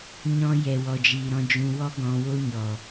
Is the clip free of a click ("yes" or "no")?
yes